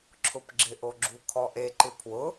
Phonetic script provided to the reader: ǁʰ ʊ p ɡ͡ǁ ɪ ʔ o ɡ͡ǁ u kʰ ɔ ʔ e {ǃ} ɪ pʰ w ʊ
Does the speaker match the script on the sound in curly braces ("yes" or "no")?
yes